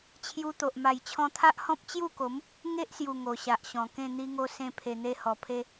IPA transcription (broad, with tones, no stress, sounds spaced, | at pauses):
t͡ɕʰ j u˧ t̪ o˨ ʔ m a˨˩ j t͡ɕʰ ɔ̃˧ t̪ʰ a˦ ʔ h ɔ̃˦ p̚ t͡ɕ j u˥˧ k o˨˦ m | ŋ e˦ ʔ s j u˨˩ ŋ o˨˩ ɕ a˨ ʔ ɕ ɔ̃˨˩ k ẽ˥˧ n̪ i˧ ŋ o˧ s ẽ˧ pʰ e˨˩ n̪ e˧ h ɔ˨˩ pʰ e˧